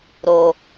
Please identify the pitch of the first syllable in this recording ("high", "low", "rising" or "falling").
low